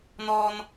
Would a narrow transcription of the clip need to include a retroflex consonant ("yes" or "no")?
no